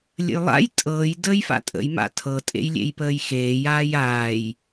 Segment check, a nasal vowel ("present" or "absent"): absent